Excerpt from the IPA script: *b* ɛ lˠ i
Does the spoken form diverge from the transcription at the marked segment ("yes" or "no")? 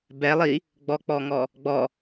no